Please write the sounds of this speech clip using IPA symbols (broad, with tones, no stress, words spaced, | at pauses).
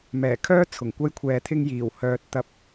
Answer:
mɛː˨˩kʰœː˥ t͡sʰʊ˨˩ŋkʷɐ˧jkʷʰɛː˨t̪ʰɪ˧ŋ jiː˨˩whœː˨t̚ t̪ɐ˧p̚